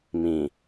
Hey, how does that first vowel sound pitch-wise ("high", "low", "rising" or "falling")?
low